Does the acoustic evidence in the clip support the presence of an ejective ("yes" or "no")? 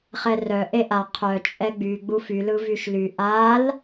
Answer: yes